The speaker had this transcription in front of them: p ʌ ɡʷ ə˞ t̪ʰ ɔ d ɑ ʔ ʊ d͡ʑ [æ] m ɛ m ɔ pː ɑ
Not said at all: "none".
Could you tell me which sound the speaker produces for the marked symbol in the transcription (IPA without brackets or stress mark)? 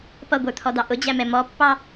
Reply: æ